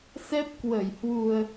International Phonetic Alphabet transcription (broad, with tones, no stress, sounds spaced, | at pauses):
s ɛ˦˥ p̚ k w ə˧˩ j h w u˨˩ ə̯